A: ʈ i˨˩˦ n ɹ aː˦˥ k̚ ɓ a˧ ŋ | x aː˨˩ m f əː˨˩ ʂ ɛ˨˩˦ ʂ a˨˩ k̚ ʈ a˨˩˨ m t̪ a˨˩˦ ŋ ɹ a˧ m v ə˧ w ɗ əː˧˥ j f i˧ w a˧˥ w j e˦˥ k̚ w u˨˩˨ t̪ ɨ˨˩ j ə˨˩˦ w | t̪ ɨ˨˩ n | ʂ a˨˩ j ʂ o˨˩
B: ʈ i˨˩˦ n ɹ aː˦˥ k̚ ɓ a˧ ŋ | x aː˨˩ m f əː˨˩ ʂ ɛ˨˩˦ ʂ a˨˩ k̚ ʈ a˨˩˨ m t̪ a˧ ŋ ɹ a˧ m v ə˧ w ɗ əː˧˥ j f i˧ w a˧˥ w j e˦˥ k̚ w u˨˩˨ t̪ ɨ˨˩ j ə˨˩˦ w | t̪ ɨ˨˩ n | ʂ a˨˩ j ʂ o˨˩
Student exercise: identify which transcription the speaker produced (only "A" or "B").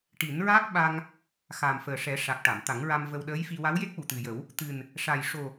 A